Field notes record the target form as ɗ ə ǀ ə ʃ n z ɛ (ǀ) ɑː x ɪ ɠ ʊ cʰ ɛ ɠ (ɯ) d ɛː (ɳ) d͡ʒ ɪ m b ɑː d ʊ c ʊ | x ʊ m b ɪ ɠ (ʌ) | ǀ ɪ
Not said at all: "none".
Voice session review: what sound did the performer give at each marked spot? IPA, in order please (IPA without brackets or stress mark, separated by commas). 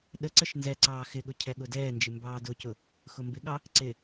ǀ, ʊ, n, ɑ